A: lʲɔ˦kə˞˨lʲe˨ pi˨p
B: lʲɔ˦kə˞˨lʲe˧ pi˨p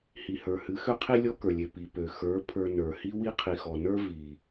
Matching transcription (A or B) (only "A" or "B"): A